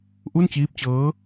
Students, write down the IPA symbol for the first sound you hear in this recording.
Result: ʔ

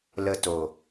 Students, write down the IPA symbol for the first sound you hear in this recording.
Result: l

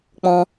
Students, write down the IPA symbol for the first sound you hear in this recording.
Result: k͡p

